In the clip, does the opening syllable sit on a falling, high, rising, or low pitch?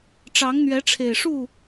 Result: rising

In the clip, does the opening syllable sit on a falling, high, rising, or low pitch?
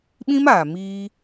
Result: high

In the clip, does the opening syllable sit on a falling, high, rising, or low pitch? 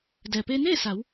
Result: low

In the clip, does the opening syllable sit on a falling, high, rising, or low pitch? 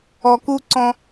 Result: low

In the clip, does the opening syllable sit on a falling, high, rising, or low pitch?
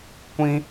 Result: high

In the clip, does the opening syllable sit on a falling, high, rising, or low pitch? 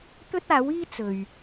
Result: high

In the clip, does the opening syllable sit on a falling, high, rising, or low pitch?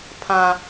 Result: low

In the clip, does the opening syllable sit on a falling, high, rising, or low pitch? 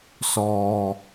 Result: low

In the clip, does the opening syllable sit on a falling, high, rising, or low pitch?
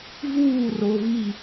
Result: falling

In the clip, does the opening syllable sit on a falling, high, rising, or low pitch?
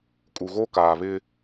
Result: low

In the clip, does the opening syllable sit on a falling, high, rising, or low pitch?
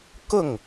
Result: falling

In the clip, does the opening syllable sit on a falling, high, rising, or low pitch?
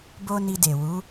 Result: high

